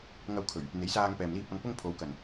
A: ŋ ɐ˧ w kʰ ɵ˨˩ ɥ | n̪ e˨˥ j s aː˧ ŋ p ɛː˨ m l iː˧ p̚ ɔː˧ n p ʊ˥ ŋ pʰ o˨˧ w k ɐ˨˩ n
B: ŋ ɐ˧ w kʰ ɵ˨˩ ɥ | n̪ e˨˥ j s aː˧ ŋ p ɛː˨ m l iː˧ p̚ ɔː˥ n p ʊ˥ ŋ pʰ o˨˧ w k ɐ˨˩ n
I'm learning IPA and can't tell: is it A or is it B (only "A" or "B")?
A